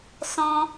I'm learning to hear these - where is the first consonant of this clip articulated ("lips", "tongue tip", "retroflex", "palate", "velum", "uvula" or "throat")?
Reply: tongue tip